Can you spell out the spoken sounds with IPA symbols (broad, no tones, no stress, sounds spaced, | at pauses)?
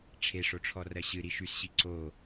ʈ͡ʂʰ e ʂ o ʈ͡ʂʰ ɔ r ɜ ɕ ɨ ɾ i ʃ y s ɕ i ǀ o